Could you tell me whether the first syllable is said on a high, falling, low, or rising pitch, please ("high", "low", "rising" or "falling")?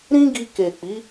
high